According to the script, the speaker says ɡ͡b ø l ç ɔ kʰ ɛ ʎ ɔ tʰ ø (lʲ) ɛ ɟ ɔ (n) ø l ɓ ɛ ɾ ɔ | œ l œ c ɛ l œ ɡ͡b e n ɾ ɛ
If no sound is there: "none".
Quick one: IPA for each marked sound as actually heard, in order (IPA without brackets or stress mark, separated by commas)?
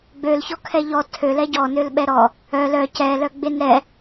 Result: l, n